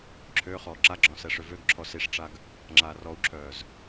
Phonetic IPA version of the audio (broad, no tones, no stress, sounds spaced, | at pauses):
ǁʰ ø χ ɔː ǁ a ɡ͡ǁ ɔ̃ s ɛ ʂ ø v ø ɡ ǁʰ ɔ s i ʂ ʈ͡ʂ a ɡ | ŋ͡ǁ aː r ɔ u̯ ǁʰ œː z